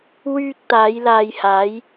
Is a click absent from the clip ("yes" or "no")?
yes